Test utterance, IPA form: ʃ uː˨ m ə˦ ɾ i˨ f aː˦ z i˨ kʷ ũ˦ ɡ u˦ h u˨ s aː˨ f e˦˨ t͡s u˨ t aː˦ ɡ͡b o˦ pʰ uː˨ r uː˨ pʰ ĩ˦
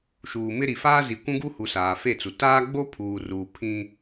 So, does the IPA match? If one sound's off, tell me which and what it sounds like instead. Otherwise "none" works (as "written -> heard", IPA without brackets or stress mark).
ə˦ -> ɪ˦